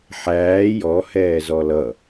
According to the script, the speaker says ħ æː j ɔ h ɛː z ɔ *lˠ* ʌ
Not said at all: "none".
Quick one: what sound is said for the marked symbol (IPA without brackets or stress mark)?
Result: l